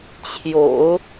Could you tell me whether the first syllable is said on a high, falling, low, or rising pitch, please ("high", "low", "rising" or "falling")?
low